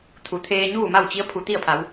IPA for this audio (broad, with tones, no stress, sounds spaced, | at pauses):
t̪ʰ u˩˧ t̪ʰ eː˧ ɲ uː˥˨ m a˥˨ w t͡ɕ i˧˥ ə̯ pʰ u˩ t̪ i˥˨ ə̯ pʰ a˩˧ w